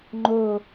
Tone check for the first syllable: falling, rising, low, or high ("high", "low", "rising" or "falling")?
low